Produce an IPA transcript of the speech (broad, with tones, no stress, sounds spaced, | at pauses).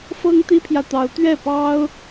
f ɤ˥ ŋ t̪ i˥ pʰ j ä˨ t̪ ɑ˧˥ ʊ̯ t̪ ɥ ɛ˥˩ p ɑ˥ ʊ̯